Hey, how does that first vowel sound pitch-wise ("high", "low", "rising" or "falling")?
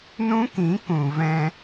high